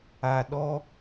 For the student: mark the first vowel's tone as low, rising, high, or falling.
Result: low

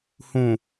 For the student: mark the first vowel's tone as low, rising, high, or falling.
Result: low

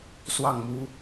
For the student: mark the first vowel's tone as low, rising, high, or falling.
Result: falling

